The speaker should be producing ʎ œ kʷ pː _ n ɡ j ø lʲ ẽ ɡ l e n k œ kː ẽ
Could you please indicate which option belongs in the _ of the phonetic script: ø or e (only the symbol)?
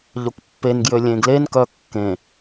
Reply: e